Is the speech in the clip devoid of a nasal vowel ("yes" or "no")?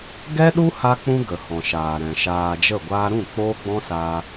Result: no